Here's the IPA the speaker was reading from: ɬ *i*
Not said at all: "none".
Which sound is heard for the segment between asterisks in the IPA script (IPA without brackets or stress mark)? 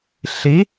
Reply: i